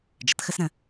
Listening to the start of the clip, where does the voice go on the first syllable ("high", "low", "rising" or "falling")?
rising